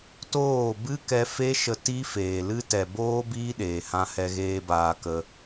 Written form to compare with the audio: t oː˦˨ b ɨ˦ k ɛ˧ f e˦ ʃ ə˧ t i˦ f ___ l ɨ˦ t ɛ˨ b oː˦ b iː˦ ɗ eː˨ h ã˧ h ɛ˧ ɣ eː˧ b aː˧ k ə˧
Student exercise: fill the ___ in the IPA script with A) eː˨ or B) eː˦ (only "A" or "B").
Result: A